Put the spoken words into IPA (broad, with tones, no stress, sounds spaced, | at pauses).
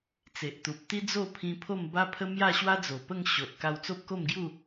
t͡s e˨ ʔ t̪ u˨ p̚ t̪ i˦ d͡z o˥˧ pʰ ĩ˧ pʰ o˥˧ m b a˦ pʰ ə˦ m j a˥˧ ɕ w a˦ d͡z o˨˩ p ə˥˧ ŋ ɕ o˨ ʔ k a˧ w t͡s o˦ p̚ k o˥˧ m ɡ j u˥˧